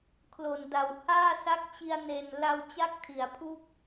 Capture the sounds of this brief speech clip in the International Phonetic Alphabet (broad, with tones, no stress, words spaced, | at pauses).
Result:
kʰlo˨˩nda˨˩w haː˥˩sa˦˥k̚t͡ɕi˧a̯ ne˨˩n la˧w t͡ɕa˥˩k̚tʰi˩˦a̯pʰu˥˩k̚